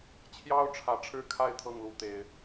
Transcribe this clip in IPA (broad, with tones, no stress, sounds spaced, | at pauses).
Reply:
t͡ɕʰ j ɑ˦ ʊ̯ ʈ͡ʂʰ ä˨˦ ʈ͡ʂʰ ɻ̩˥˨ kʰ a˥˨ ɪ̯ t̪ʰ ɤ˥˨ ŋ l u˨˦ t̪ e˨˦ ɪ̯